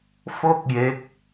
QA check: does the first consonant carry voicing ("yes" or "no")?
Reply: no